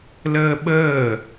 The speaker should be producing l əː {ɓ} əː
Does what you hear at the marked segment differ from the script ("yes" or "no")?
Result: no